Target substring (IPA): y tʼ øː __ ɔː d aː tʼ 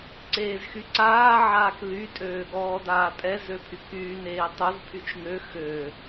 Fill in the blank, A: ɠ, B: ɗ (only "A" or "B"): A